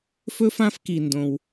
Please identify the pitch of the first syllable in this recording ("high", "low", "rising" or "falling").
high